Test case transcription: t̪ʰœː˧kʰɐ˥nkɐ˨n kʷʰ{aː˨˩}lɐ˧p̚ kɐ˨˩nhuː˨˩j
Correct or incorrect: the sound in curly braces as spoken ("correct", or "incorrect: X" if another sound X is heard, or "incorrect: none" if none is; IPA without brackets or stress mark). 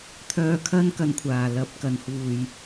correct